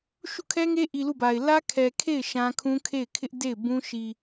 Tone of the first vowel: falling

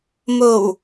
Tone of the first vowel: low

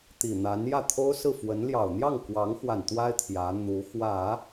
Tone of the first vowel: low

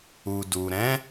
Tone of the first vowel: low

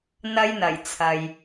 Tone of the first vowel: high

